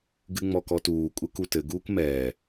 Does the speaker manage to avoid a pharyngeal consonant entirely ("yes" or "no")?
yes